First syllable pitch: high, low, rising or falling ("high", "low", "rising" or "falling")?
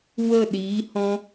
falling